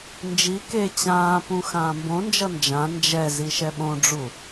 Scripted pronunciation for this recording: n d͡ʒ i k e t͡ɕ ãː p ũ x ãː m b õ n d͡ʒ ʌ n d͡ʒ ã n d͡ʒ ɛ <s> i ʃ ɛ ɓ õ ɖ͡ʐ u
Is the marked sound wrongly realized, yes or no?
yes